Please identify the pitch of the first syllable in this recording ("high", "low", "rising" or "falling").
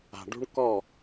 low